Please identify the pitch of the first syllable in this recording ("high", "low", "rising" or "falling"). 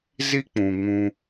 high